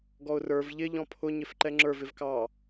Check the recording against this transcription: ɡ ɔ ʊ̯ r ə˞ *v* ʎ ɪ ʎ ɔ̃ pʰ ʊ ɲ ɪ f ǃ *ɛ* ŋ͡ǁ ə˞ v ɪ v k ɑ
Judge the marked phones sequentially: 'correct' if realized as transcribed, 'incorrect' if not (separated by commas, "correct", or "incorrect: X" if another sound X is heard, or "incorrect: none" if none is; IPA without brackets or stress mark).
correct, correct